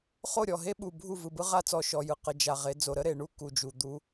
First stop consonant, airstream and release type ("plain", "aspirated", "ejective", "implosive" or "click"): implosive